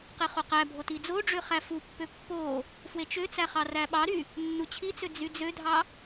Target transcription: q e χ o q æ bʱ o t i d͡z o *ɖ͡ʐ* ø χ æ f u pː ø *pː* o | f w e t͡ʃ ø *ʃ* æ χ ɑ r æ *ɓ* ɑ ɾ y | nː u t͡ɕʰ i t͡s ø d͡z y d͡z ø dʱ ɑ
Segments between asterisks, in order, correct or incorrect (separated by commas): correct, correct, incorrect, correct